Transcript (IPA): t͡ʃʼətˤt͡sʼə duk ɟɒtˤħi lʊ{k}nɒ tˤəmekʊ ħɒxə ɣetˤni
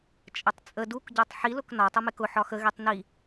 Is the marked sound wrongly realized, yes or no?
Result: no